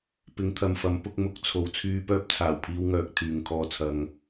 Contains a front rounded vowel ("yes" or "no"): yes